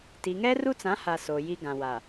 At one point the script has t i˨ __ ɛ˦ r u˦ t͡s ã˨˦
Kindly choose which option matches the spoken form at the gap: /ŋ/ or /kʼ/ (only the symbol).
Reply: ŋ